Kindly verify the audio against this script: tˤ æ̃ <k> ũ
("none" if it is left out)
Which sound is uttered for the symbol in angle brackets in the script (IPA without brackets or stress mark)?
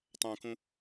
k